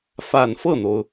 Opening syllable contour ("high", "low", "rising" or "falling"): low